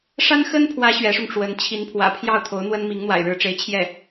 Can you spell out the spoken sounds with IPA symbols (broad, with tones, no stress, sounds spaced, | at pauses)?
ʂ a˥ n x ə˥ n pʰ w ä˧˥ ɕ ɥ ɛ˧˥ ʂ ʊ˧ ŋ ʈ͡ʂ w ə˧˥ n t͡ɕʰ i˧˥ n pʰ w ä̰˨˩ pʰ j ɑ˥˩ ʊ̯ t̪ʰ o˧˥ ʊ̯ n̪ w ə˥ n m i˧˥ ŋ n̪ w a̰˨˩ ɪ̯ ɻ ɻ̩˧˥ ʈ͡ʂ e˧˥ ɪ̯ t͡ɕʰ j ɛ˥˩